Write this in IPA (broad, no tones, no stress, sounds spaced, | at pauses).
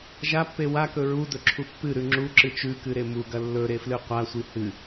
ʒ a pː e w a k ɵ ɹ u d ɵ ǁʰ u pː ɨ ɾ ʉ ŋ͡ǁ u ǁ ɨ t͡ʃ ʉ k ɨ ɾ e m u ɡ ɐ lː ɵ ɾ e f l ɨ qʷ a sʷ i h ɨ